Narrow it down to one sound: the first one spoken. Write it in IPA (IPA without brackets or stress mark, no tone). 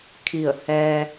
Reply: kʰ